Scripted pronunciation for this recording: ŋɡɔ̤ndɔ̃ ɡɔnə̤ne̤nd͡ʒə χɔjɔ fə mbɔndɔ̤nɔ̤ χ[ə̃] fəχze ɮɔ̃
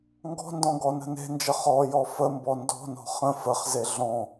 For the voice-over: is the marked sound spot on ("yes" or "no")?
yes